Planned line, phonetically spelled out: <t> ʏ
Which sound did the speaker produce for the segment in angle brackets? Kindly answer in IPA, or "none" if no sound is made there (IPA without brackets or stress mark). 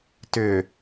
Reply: t